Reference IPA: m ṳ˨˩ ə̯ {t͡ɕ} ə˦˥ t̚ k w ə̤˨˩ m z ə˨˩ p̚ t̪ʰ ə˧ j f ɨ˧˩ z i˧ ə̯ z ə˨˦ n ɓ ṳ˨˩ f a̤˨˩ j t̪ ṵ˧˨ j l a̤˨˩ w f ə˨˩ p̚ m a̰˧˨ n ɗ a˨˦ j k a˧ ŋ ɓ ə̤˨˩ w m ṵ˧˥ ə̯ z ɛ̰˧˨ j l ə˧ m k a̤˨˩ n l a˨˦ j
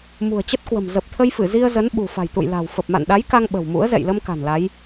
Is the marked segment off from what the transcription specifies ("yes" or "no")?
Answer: no